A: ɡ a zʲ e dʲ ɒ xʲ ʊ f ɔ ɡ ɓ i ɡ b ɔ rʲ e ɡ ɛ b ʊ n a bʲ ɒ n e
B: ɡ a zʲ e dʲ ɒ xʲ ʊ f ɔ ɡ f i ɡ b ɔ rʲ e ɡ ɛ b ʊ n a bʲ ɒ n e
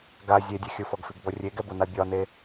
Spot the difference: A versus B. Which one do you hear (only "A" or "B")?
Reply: B